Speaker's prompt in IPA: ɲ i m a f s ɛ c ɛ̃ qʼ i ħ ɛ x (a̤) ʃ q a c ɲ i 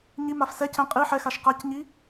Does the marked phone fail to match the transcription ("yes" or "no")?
yes